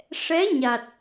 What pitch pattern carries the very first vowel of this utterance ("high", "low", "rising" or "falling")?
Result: rising